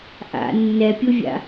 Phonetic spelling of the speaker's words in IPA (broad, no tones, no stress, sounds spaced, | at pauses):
ʔ a̰ nː ɛ pʲ u vʲ a̰